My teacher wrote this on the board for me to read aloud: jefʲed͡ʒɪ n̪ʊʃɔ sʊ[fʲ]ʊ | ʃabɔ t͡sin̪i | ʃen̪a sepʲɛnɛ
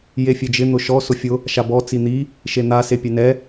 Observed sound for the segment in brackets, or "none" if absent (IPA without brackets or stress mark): fʲ